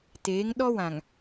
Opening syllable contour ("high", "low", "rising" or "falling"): rising